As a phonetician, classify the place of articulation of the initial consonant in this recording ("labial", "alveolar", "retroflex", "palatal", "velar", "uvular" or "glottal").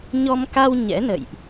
palatal